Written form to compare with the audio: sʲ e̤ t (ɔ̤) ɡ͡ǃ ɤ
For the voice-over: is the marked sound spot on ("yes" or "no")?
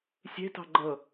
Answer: no